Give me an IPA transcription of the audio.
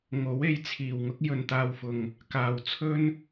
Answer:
ŋ o˨˥ w e˨˥ j t͡sʰ iː˨˩ w ŋ ʊ˥ k̚ j ɵ˨ n t̪ aː˧ w f ʊ˨ ŋ | k aː˨ w t͡sʰ ɵ˥ n

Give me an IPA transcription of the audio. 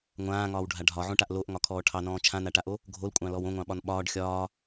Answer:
ŋʷ ãː ŋ ɒː w ɖʱ a ɖʱ ɒ ʕ õ ʈ a ʔ l o ʔ ŋ ɒ kʰ ɔː ʈʰ ɑ n ɔ̃ː t͡ʃʰ ã n a ʈ a ʔ o | ɡʱ o l kʷʼ ɑ̃ l ɔ w õ ŋʷ ɑ̃ ɓ ɒ n ɓ ɒː ɖ xʲ ɒː

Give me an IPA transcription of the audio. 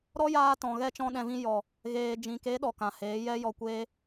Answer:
ɾ ɔ˦ j aː˧ t ɔ̃˨ ɣ ɛ˦ t͡ʃ ɔ̃˦ ɗ ɛ̃˧ v ĩ˦ j ɔ˨ | ɣ eː˨ d͡ʒ ĩ˨ k e˨˦ ɗ ɔ˨ k ã˨ h eː˨˦ j ɛ˦ j ɔ˧ kʷ eː˦

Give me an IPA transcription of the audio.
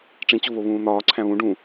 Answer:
ʈ͡ʂ ĩ t͡ɕ o β o β ũː n̪ ɒː ǀʰ æ̃ β ũ ɖ ũ

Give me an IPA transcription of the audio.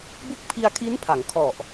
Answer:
b u˦˥ k̚ pʰ i˧ a̯ kʰ i˦˥ n pʰ a˩˦ ŋ kʰ ɔ˨˩ ʔ

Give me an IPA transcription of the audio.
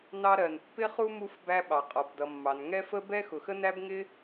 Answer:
n ɑ˧ ɾ ɜ˨ n pː ɪ˦ χ u˦ m u˦ f b æ˧ ɓ ɑ˨ qʼ ɔ˨ b d ʌ˨ mː ɑ˨ n ŋ ɛ˦ f ə˦ b ɛ˦ x ʊ˨ x ə˦ n æ˦ b ŋ ɪ˦

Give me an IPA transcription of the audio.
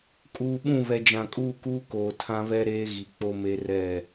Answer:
kʼ uː˨ ɓ ũ˦˨ β ɛ˨ d͡ʒ ã˨ kʼ uː˦˨ k uː˦ k oː˨ tʰ ã˦ β ɛ˦ ɾ eː˦ ɣ i˨ k͡p o˦ m e˦ r ɛ˦˨

